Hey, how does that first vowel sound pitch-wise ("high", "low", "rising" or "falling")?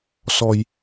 low